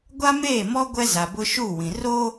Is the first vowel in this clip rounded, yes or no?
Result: no